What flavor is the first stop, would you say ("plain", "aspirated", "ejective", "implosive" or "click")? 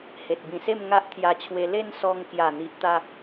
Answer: plain